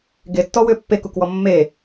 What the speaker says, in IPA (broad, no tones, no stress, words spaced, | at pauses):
ɡetːɔwʏː pːekukwɔ mːe